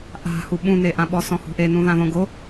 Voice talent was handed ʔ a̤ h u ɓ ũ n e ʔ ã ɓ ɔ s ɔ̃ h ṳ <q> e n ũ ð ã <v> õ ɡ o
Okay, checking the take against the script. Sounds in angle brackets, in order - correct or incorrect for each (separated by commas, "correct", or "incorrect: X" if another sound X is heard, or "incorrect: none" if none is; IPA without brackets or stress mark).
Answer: incorrect: ʔ, incorrect: ð